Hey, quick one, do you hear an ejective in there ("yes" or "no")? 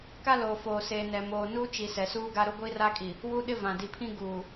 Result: yes